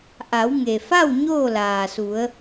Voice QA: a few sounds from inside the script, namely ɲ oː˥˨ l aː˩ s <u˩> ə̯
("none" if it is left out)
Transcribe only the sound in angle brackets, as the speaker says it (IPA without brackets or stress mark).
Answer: u˩˧